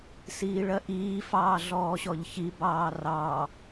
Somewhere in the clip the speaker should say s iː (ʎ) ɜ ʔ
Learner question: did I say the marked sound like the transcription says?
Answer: no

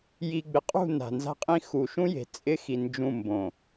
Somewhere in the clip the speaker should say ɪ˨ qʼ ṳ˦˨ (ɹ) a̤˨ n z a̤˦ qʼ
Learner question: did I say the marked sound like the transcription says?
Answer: no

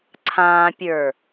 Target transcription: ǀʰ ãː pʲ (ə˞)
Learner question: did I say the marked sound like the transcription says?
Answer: yes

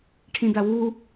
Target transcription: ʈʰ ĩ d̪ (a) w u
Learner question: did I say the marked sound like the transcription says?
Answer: yes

